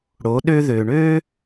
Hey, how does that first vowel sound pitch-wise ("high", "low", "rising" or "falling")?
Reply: rising